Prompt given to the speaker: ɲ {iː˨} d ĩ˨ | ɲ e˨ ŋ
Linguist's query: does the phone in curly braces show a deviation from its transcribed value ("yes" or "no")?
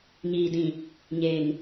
no